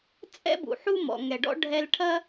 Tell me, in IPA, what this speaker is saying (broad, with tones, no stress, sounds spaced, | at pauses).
t͡sʼ ɛ̰˦ b ṵ˨ ħ u˦ m ɔ̰˨ ŋ ɛ˨ ɖ ɔ̰˦ ɖʱ ɛ˦ l ʈʰ ɐ˦